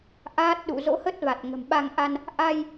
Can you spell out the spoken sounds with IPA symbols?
ʔ aː˦˥ t̚ ɗ ṵ˧˨ z o̰˧˥ h ə˦˥ t̚ v a˨˩ t̚ ŋ ə̤˨˩ m ɓ a˧ ŋ ʔ a˧ n | ʔ a˧ j

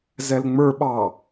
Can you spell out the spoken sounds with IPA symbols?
z ɛ l ŋ͡m ə˞ ɓ ɑ

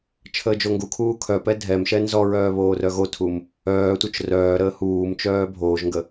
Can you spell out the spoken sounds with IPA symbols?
t͡ʃʰ əː d͡ʒ o ŋ ɡ u kʰ uː kʰ œ p ɛ dʱ ɛ m ʃ ɛ n z ɔ ɹ œː β oː r œ ɣ o tʰ u m | œː tʷ œ t͡ʃ r œː ɾ əː h uː m t͡ʃ œː bʱ oː ʒ ŋ ɡ ə

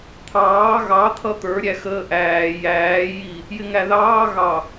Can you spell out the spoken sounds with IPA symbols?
t̪ʰ ɑː ɣ ɑ t̪ʰ ʌ t̪ ə˞ ɾʲ æ x əː ʔ æː j æː j i | j ɪ ŋ æ ð ɑː ɣ ɑ

